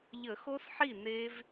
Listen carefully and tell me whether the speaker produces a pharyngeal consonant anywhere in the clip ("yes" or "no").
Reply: yes